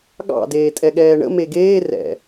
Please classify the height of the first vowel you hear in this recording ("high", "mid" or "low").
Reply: low